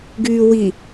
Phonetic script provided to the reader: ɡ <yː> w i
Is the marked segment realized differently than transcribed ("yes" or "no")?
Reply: no